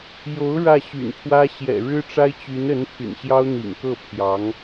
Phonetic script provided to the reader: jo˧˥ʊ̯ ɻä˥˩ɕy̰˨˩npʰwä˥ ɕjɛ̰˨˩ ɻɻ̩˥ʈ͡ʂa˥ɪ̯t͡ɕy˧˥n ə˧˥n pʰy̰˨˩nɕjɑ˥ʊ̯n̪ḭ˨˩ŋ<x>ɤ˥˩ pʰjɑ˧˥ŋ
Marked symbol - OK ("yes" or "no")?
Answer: no